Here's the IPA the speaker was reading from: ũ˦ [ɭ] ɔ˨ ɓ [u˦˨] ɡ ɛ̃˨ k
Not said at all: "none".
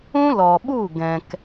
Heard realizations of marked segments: l, u˦˨

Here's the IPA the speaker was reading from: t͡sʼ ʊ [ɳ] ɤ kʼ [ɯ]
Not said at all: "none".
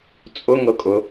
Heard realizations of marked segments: ŋ, ʊ

